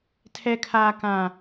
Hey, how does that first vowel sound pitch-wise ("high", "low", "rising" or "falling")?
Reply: high